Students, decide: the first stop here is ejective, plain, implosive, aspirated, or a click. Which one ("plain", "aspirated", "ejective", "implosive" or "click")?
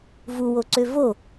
click